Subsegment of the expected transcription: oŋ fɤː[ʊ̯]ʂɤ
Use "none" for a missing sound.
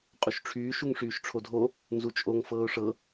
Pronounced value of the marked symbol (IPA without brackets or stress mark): ʊ̯